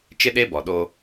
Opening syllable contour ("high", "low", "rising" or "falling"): high